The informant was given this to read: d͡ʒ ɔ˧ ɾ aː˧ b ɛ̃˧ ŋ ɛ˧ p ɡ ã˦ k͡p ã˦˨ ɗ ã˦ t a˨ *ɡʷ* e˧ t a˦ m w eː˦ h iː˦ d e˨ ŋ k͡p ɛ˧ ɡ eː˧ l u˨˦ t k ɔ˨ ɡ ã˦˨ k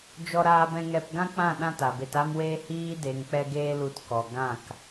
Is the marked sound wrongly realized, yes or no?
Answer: yes